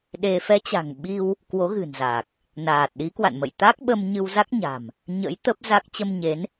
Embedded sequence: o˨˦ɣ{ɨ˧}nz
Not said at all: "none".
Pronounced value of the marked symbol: ɨ̤˨˩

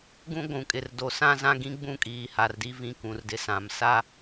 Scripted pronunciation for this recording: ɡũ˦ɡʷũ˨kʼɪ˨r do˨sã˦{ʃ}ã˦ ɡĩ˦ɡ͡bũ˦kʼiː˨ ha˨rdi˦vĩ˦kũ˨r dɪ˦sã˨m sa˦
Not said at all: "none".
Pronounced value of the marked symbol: z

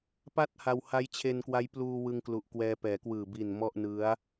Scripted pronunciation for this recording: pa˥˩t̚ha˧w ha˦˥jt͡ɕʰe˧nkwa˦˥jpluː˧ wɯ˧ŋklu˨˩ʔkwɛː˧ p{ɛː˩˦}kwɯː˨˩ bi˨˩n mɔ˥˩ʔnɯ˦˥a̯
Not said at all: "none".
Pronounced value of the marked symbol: ɛː˩˦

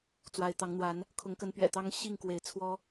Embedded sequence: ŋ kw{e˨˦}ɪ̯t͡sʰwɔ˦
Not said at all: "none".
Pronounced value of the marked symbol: e˨˦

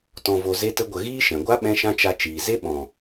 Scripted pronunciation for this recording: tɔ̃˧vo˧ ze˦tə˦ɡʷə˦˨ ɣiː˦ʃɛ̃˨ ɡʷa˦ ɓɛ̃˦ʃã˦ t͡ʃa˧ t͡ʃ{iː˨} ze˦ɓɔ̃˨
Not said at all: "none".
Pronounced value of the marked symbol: iː˨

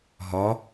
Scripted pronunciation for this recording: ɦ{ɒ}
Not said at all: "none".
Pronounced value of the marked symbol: ɒ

